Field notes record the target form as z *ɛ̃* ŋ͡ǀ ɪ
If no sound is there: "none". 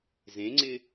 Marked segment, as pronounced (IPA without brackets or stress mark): ẽ